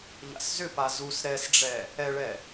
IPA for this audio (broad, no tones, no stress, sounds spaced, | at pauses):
ʎ a̰ s z ʏ p a z u s ɾ ɛ s ɖ͡ʐ ɛ | ɛ ɭ ɛ